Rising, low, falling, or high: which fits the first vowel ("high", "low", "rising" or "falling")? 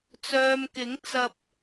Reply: low